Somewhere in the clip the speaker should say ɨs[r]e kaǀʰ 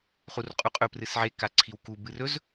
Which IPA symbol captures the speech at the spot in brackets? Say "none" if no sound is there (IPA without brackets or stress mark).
ʕ